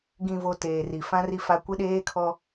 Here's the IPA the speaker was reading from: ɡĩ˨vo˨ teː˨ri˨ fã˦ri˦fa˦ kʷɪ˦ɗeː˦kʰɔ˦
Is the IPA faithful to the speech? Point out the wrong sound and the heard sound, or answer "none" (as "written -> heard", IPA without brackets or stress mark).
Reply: none